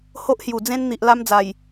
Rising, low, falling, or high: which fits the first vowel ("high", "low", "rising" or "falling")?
high